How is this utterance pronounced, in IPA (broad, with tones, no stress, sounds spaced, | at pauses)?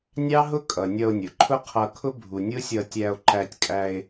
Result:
nʲ ɑ˦ ɦ ʊ˦ kʼ ʌ˨ nʲ ʌ˧ o̯ nʲ ʊ˨ ǃʰ ʊ˦ qʰ ʌ˧ kʰ ʊ˦ bʱ u˨ nʲ ʊ˦ sʲ ʌ˧ tʲ æ˧ o̯ ǃ æ˧ tʲ kʼ æ˧ e̯